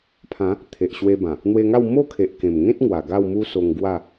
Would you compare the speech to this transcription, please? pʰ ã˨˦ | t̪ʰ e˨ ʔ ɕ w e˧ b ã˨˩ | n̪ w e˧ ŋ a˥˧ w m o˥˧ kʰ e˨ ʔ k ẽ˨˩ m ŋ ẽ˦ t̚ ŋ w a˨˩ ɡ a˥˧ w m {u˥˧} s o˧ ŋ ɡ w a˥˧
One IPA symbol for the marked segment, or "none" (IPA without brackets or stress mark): u˦